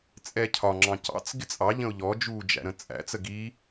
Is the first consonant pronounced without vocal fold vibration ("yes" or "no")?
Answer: yes